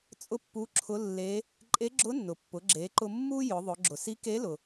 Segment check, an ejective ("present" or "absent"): present